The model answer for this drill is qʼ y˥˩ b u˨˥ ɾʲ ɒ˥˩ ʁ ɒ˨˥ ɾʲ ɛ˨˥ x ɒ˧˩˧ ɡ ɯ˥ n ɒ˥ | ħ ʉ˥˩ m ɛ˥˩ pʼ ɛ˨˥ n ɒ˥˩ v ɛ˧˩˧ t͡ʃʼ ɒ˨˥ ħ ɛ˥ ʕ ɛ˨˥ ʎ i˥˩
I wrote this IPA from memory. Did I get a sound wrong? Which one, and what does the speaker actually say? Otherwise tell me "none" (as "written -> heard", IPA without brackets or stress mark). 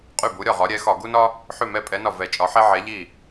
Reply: ɯ˥ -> u˥